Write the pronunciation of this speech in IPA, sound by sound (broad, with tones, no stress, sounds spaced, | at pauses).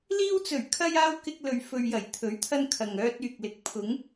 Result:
l iː˧ w t͡s ɵ˨˩ ɥ kʰ ɐ˧ j aː˧ w k ɪ˧ k̚ l ɵ˨ ɥ f ɵ˨ ɥ j ɐ˨˩ j t̪ʰ ɵ˨˥ ɥ t̪ʰ ɐ˧ n kʰ ɐ˨ ŋ œː˧ t̚ yː˨ k̚ l ɪ˨˥ k̚ pʰ ʊ˨˧ ŋ